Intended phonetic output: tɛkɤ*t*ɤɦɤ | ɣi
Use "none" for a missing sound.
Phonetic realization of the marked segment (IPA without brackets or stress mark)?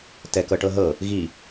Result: ʈ